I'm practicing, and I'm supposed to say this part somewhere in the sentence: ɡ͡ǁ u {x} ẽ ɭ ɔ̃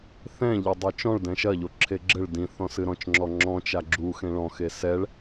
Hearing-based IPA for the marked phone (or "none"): x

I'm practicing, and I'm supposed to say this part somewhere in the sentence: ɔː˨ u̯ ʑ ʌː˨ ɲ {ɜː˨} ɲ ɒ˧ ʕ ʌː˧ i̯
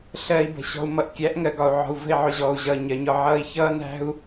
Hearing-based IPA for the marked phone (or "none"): ɜ˨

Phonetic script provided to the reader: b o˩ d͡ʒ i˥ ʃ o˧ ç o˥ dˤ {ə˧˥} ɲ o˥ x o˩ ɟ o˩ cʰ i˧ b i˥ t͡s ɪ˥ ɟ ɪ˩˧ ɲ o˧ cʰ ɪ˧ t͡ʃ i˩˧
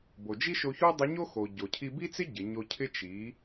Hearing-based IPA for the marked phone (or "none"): ə˧˥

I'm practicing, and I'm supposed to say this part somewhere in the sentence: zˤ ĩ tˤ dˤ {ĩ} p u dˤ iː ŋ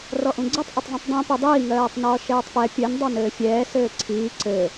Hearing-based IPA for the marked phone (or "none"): ĩ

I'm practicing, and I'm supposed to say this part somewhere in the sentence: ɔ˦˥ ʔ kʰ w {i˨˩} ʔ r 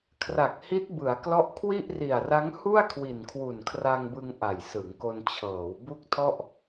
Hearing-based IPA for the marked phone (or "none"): i˥˩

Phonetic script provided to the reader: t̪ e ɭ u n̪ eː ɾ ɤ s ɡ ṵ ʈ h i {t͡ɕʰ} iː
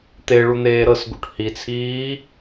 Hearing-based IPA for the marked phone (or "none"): t͡sʰ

